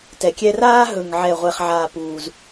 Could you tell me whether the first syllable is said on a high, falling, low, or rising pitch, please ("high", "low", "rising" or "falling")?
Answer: low